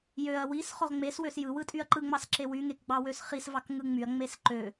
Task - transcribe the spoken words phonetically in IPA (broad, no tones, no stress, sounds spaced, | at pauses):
j ø ɐ̯ w i s χ o ʁ ŋ͡m e s w ø s j ɯ w ɯ tʼ y ɐ̯ ǃ ɯ ŋ͡m ɑ s ǁ e w y ŋ e k ɡ͡b ɑ w ø s χ i s v ɑ k ŋ ɯ ŋ͡m y ɐ̯ ŋ͡m e s ǃ ø